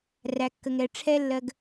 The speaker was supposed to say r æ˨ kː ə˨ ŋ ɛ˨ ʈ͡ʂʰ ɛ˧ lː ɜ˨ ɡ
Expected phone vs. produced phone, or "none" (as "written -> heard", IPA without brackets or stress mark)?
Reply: none